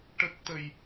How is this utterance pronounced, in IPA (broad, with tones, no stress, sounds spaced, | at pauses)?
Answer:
ʈ ə˦˥ k̚ t̪ ə˧ j